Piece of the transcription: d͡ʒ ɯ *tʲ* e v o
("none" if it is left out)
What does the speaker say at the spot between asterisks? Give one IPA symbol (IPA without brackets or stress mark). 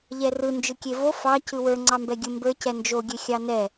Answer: kʲ